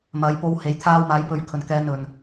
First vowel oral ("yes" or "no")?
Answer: yes